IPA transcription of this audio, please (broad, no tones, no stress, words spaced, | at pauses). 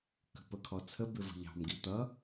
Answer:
kə̤pəkʰɔt͡sʰə bɪvə̤ʎɑ̤m ɡit̪ʌ